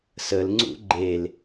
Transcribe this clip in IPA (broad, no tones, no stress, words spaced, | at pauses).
səl ŋ͡ǀṵɡ͡ǃel